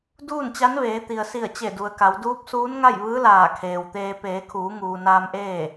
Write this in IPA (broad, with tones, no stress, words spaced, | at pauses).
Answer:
duː˥˨nt͡ɕa˧˥nʋeː˩˧t̪i˩ə̯ si˧˩ə̯t͡ɕe˧˩du˩ə̯ka˩˧w duː˧˥p̚suː˧˥nŋa˥˨jʋɯː˧˥ laː˧˩kʰeː˩wt̪eː˧ peː˩˧kʰuː˩˧ŋuː˩ naː˧mʔeː˥˨